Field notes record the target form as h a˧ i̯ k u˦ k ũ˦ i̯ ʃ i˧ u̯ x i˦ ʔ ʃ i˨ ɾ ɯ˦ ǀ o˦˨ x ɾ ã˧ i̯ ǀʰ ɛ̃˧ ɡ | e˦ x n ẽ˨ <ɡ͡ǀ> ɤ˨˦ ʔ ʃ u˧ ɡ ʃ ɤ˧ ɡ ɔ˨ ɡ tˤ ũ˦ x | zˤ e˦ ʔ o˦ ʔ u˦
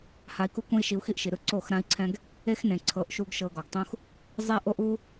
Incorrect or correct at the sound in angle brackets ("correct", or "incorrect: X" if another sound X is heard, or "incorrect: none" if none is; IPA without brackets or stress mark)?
incorrect: ǀʰ